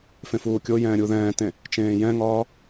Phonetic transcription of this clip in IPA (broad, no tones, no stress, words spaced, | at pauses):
fẽfuːkʲojɛ̃ː ɾʲuðɛ̃ːtẽ | t͡ʃẽːjɛ̃ŋɒː